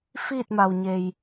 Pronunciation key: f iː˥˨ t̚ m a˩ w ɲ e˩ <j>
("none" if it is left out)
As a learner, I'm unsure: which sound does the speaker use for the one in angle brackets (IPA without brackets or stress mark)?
j